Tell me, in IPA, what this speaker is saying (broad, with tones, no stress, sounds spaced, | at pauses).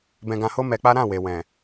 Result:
b ɛ̃˧ ɡ ã˧ h o˦ m ɛ˧ k͡p a˦ ɾ ã˦˨ w e˨ w ɛ̃˨